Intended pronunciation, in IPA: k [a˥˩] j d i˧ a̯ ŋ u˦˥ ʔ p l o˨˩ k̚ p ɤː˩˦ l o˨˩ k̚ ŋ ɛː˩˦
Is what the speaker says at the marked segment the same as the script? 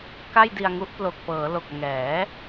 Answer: yes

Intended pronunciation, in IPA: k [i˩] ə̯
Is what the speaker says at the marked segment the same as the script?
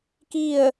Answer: no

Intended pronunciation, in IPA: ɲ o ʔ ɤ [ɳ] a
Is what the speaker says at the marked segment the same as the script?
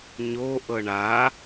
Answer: yes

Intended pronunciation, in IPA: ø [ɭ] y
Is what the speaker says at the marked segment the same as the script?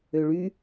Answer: yes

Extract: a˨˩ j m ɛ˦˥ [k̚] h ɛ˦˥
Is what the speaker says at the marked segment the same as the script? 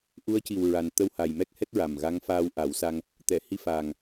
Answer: yes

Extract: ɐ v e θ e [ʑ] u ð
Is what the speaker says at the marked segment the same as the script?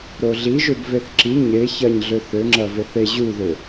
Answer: yes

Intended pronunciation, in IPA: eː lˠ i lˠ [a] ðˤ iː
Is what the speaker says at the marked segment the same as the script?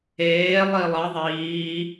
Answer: no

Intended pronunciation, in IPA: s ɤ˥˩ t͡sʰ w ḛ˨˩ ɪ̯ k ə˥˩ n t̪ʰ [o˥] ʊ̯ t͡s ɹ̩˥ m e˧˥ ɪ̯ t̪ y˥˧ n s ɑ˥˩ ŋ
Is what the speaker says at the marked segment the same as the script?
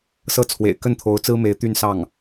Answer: no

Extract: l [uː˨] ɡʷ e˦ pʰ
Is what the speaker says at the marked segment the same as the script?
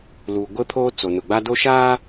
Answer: yes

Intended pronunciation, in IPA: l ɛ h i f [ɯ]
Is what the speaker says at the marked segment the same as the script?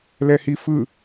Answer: yes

